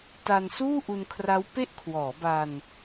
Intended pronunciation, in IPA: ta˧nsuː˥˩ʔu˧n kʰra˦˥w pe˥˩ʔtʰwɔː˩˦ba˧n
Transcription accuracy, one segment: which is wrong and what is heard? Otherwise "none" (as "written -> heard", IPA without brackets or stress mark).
tʰ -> kʰ